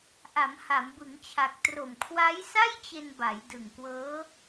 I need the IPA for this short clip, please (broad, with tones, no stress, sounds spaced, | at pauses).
ʔ a˩˦ m h a˩˦ m b ɯ˩˦ ŋ t͡ɕʰ a˨˩ k̚ t r o˨˩ m kʰ w a˦˥ j s a˥˩ j t͡ɕ e˧ n b a˩˦ j d ɯ˨˩ ŋ k w ɤː˦˥